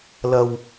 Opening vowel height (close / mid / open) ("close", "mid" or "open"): open